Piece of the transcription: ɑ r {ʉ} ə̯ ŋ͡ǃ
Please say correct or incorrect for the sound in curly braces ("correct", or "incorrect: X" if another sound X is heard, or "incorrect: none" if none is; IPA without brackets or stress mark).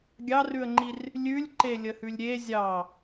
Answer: correct